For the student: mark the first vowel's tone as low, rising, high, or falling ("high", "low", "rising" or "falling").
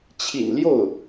low